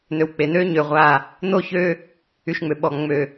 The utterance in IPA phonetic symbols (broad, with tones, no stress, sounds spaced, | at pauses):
n̪ ø˨ w k͡p e˨ n̪ ø˦ ɲ ø˨ ʁʷ a˦˨ | n̪ o˦˨ ç ø˦ | y˨ ʃ ŋ͡m ø˨ ɓ ɔ˨ ŋ͡m ø˨